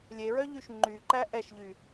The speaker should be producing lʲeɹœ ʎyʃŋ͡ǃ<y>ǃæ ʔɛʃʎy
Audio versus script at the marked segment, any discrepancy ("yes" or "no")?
no